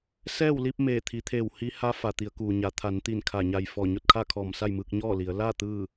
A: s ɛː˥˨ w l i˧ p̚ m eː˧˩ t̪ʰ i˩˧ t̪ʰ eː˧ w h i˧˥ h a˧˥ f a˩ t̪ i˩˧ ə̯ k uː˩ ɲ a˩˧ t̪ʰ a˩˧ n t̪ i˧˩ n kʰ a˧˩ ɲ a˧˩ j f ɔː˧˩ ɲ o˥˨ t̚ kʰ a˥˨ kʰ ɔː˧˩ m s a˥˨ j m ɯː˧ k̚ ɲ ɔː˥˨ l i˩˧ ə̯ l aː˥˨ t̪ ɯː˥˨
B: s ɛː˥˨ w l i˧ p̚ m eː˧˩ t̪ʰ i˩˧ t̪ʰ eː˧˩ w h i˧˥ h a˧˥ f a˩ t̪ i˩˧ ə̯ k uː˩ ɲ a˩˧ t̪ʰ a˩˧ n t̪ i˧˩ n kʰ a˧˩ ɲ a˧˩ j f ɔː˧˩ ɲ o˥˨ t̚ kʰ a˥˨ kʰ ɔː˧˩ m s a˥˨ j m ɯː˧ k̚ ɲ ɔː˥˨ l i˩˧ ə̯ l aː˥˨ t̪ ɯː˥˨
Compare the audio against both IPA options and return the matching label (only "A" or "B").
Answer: B